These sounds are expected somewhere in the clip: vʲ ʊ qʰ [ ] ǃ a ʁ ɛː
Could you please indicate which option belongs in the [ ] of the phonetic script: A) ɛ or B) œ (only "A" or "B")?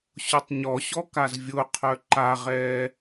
B